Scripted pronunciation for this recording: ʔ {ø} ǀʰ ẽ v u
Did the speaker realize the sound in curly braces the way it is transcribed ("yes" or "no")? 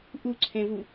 no